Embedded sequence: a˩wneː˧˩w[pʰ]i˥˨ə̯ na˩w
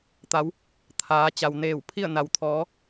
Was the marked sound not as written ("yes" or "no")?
no